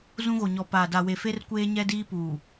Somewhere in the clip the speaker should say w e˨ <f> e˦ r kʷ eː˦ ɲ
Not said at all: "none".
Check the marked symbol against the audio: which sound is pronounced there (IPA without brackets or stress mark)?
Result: f